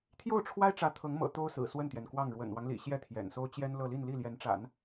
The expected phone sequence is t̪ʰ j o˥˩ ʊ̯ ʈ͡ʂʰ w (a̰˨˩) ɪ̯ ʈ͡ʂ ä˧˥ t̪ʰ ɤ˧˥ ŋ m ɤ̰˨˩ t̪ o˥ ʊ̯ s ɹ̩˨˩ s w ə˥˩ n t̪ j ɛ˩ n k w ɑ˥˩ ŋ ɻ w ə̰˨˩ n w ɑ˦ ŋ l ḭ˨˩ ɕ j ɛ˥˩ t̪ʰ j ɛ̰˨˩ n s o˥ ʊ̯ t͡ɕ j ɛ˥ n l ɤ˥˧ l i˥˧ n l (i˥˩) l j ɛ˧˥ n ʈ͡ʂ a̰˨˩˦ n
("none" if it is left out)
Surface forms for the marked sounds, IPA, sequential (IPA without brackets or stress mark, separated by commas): a˥, i˥˩